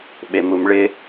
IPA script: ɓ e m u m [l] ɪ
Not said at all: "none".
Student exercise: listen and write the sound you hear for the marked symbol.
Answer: ɭ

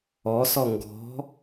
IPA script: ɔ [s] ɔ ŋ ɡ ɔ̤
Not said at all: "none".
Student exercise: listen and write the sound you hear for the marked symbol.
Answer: s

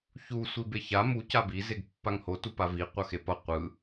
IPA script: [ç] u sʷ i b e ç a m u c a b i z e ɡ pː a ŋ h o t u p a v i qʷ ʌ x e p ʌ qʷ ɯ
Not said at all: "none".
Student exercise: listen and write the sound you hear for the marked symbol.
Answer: ç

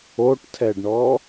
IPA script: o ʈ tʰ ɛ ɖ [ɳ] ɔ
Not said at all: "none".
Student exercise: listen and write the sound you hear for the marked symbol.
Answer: ɳ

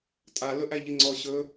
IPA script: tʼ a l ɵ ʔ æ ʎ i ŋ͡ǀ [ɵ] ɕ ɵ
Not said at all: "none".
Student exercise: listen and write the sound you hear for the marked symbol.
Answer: ɔ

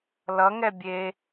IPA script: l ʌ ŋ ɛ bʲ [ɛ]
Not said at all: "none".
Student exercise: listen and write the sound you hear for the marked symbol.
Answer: e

